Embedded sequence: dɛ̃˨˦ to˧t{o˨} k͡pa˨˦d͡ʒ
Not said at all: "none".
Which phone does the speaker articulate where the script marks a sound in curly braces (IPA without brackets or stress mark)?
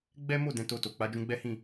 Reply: o˨